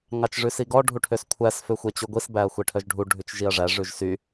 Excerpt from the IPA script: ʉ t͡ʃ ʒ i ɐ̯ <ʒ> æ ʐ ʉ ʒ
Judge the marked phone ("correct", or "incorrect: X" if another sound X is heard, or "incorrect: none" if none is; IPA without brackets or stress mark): incorrect: ʐ